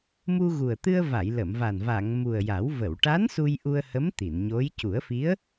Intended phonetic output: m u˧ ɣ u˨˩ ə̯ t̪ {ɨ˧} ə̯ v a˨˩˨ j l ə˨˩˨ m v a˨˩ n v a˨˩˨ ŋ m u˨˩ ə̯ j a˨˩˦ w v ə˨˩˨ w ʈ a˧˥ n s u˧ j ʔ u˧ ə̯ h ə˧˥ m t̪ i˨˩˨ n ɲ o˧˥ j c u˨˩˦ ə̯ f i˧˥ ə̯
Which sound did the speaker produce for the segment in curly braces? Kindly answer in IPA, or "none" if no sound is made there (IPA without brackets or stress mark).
ɨ˧